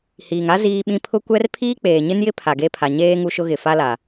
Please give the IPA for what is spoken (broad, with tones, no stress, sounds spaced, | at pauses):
h iː˨ ŋ a˦ z iː˦ ɓ ĩ˦ pʰ ʊ˦ kʷ ɛ˦ r pʰ iː˦ k͡p eː˨ ɲ ɪ˦ n j ɪ˦ pʰ a˨ ɡ e˦ pʰ a˨ ɲ eː˦ ŋ u˦ ʃ ʊ˦ ɣ ɪ˨ f a˦ l a˨